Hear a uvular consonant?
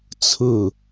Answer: no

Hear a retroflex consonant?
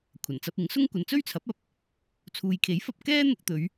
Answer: no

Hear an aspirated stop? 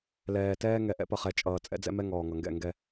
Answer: no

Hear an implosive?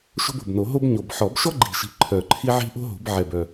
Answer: no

